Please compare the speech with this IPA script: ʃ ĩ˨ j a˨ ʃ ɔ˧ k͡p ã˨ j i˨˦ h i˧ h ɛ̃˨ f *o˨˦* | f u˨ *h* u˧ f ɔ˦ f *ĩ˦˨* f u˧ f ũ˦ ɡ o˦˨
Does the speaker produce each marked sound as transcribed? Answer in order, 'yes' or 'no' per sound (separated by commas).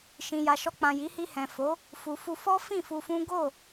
yes, no, yes